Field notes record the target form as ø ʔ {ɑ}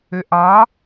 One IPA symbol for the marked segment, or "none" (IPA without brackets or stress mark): ɑ